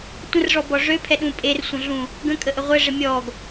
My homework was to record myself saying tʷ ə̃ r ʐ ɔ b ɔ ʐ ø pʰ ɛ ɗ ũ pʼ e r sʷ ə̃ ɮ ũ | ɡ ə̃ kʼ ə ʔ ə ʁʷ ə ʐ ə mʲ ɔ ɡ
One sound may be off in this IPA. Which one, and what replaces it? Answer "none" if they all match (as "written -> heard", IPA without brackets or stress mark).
none